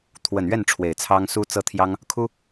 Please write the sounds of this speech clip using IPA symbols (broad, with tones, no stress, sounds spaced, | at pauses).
t̪ʰ w ə˨˩ n ɥ ɛ˥˩ n ʈ͡ʂʰ w e˨˩ ɪ̯ t͡sʰ ɑ˥ ŋ s u˥ t͡s ɤ˥˩ t̪ʰ j ɑ˥ ŋ | kʰ u˥